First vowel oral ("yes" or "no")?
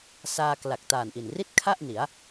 yes